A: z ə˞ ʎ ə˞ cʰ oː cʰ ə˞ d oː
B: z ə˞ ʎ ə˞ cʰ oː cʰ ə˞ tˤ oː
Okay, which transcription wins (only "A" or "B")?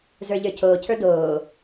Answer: A